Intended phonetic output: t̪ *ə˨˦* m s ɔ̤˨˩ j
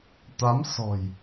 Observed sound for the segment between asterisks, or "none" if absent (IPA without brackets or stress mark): a˨˦